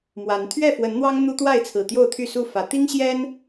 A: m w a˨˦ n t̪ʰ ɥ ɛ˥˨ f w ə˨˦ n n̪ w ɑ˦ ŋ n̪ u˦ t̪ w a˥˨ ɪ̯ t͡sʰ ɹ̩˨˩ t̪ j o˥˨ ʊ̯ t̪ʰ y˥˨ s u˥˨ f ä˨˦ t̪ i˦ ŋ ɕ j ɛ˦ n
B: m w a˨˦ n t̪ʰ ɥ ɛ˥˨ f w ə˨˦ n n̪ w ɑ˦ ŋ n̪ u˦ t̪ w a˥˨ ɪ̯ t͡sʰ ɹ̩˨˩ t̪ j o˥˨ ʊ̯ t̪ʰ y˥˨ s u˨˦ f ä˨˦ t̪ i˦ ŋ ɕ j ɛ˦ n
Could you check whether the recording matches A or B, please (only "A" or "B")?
A